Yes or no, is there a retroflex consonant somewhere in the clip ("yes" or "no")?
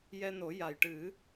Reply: yes